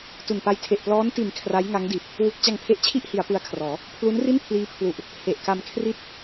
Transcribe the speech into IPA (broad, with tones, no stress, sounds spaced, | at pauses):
t u˨˩ n p a˧ j tʰ e˨˩ ʔ p l ɔː˦˥ n t i˨˩ n kʰ r a˦˥ j ŋ a˦˥ ŋ d i˨˩ t̚ | w u˦˥ k̚ t͡ɕ a˧ ŋ pʰ e˦˥ ʔ t͡ɕʰ i˥˩ ʔ h i˩˦ a̯ p ɯ˦˥ a̯ kʰ r ɔː˩˦ | pʰ l u˦˥ n r i˥˩ n pʰ l iː˦˥ pʰ l u˨˩ ʔ | h e˨˩ ʔ k a˧ m kʰ r i˥˩ t̚